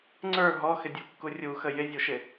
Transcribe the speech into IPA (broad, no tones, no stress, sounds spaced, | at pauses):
ŋ͡ǀ ə˞ ɦ ɔ x ɪ dʲ u kː u rʲ u x ə j ɪ zʲ u ʃ ɪ